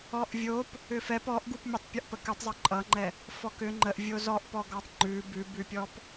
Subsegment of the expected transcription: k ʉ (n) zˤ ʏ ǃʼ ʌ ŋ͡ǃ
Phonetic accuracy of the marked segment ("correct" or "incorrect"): incorrect